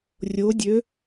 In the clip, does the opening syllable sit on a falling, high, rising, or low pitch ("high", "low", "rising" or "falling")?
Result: rising